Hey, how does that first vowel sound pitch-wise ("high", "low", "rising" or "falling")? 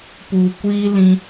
low